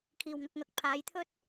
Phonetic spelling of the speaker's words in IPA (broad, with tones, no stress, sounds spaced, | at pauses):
kʰ iː˨˩ w ŋ ɐ˨ k̚ ŋ ɐ˨˥ k̚ pʰ aː˨˧ j t̪ʰ ɵ˥ t̚